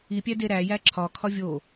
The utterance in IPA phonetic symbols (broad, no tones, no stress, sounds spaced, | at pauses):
i pʲ æ d e ɾ æ j æ ǁʰ ɒ kʰ ɒ vʲ o